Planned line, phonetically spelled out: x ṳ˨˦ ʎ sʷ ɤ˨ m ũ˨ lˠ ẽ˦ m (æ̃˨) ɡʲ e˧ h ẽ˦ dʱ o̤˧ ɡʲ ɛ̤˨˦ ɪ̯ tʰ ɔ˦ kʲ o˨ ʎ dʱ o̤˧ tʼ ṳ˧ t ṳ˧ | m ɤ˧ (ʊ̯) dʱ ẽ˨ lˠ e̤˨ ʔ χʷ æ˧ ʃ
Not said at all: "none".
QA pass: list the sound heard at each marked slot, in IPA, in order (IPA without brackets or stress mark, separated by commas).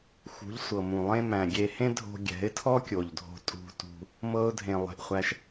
æ̃˨, ʊ̯